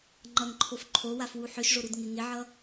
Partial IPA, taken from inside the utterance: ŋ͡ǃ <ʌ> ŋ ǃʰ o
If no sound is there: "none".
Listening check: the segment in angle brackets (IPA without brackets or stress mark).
ʌ